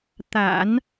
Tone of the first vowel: low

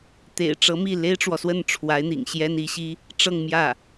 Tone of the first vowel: low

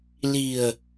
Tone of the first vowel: low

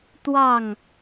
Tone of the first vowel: falling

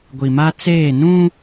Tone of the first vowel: low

